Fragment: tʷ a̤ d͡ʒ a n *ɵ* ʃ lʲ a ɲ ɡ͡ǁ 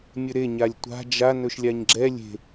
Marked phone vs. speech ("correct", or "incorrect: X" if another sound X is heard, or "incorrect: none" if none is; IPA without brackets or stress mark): correct